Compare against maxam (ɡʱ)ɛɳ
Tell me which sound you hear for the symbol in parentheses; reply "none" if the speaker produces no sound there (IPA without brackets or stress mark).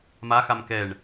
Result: k